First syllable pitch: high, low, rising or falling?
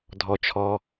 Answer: low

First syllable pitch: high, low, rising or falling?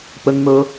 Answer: high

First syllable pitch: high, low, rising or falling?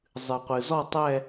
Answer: low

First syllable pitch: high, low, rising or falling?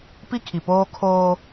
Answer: high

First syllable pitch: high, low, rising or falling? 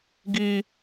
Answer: high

